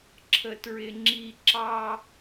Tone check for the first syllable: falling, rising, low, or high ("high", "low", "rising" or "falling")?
high